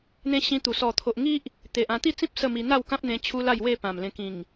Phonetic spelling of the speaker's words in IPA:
n̪ ẽ˦ ɕ ĩ˧ t̪ u˨˩ s ɔ˨˩ t̪ʰ o˨ ʔ ŋ i˦ ʔ | t̪ e˨ ʔ ã˧ t̪ i˥˧ t͡s ĩ˦ p̚ s ə˥˧ m i˧ n̪ a˥˧ w k ã˦ p̚ n̪ ẽ˧ t͡ɕʰ u˦ l a˥˧ j w e˥˧ p ã˨˩ m l ẽ˧ k ĩ˨˩ ŋ

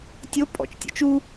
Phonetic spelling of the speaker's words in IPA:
tʲ o pʼ ɔ̰ t͡ʃ tʲ o̰ t͡ʃ u

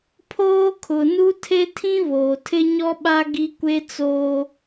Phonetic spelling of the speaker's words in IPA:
pʰ oː˦ kʰ ʊ˨ n u˦ tʰ e˦ tʰ ĩ˦ β oː˨ tʰ ɪ˦ ɲ ɔ˦ ɓ a˦ ɡ i˦ kʷ e˦ t͡s oː˦

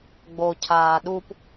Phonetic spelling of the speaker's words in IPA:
ɡ͡b o cʰ aː ɗ u p

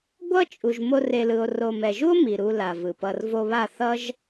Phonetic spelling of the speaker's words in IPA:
ɡʷ ʌ˦ t͡ʃʼ u˨ ʒ m o˧ r e˨ l ɯ˨ o̯ r o˨ m ɛ˨ ʒ u˦ o̯ m i˨ ɾ u˧ l a˨ v ɯ˨ p ʌ˧ r v o˧ β a˦˨ θ ʌ˦ ʒ

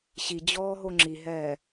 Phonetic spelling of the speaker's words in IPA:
ɕ i d͡ʑ ɔː ɦ o ŋ͡ǁ i ɦ ɛː

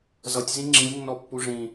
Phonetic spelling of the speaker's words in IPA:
z ʌ tʲ z ĩ ŋ͡ǁ ĩ lʲ nː ɔ pː u ʐ ĩ

